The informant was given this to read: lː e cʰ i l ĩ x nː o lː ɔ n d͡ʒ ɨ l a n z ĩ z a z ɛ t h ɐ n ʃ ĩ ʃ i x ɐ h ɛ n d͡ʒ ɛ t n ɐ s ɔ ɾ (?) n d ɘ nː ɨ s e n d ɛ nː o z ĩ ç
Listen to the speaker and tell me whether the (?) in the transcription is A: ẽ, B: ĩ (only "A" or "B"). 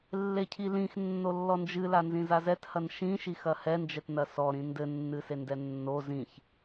B